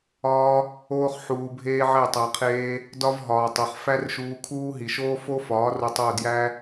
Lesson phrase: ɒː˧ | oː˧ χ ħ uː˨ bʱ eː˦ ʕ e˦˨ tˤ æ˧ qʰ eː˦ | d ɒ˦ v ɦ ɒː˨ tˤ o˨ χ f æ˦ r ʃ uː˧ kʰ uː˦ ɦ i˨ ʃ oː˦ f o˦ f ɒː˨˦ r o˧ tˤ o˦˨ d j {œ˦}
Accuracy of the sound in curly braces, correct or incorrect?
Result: incorrect